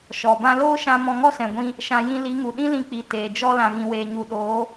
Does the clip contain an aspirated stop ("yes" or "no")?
no